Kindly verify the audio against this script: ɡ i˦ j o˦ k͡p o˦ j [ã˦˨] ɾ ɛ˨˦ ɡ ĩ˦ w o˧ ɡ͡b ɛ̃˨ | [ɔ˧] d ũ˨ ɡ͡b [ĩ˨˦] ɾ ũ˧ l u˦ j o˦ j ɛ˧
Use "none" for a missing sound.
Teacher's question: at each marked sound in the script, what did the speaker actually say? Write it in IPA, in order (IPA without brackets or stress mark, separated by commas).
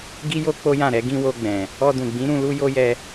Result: ã˦˨, ɔ˧, ĩ˨˦